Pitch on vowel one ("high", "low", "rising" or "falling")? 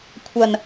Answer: low